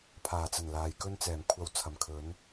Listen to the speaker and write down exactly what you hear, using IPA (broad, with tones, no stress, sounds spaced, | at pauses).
pʰ aː˨˩ t͡s ɐ˨˩ n l aː˨˧ j k ɵ˥ n t͡s ɛː˨˩ m kʷʰ ɐ˧ w t͡sʰ ɐ˨˩ m kʰ ɵ˨˥ n